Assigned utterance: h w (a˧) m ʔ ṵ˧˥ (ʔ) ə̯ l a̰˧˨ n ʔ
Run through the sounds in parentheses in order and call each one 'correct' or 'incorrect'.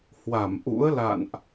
incorrect: a˧˩, incorrect: none

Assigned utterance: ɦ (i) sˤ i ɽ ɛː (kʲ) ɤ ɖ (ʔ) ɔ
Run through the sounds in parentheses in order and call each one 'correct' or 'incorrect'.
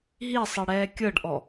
correct, correct, correct

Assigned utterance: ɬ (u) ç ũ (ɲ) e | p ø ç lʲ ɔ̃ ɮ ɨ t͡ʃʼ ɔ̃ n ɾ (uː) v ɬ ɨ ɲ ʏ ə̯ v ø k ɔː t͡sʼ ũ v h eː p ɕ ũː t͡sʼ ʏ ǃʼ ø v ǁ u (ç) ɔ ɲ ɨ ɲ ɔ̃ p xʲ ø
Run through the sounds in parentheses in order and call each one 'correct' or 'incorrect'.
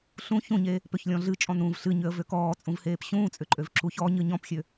incorrect: ũ, correct, incorrect: ũː, correct

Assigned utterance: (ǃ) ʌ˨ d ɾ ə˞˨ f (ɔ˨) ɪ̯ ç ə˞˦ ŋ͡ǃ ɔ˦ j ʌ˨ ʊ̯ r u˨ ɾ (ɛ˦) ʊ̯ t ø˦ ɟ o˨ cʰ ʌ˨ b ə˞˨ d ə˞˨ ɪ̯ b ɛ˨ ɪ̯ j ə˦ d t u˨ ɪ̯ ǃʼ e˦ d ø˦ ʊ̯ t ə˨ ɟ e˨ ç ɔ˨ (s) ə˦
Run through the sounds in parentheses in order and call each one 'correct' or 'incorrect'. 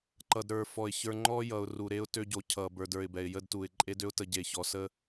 correct, correct, incorrect: e˦, correct

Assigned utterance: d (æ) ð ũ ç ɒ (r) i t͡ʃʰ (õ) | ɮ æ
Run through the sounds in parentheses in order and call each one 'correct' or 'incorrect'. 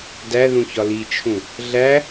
correct, incorrect: l, incorrect: ũ

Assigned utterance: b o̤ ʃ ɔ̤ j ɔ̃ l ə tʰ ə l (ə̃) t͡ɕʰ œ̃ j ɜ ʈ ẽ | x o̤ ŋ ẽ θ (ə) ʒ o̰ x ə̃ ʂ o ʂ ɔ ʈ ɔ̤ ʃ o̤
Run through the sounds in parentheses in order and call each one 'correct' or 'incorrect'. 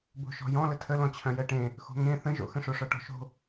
incorrect: ɔ̃, incorrect: ə̃

